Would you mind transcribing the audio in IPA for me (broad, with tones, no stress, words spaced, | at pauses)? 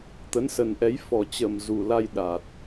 t̪ə˨˦nsə˨˩nʔɛ˨˦j fɔ˨˩t͡ɕə˨˩m zu˨˩la˧j ɗa˨˩t̚